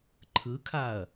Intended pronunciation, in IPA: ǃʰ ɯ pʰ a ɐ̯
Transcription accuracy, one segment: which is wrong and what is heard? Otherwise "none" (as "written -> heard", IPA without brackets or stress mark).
pʰ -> kʰ